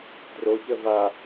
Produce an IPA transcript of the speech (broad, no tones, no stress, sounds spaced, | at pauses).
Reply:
d r o ç ə v a